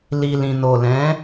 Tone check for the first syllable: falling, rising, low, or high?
low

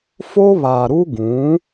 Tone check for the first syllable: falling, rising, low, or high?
high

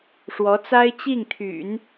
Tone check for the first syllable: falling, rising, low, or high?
rising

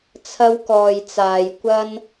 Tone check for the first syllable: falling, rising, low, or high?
high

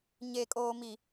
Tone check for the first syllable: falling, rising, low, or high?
low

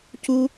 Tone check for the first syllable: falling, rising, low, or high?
high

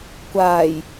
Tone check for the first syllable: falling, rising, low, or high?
low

